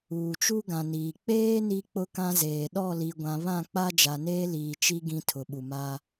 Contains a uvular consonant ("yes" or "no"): no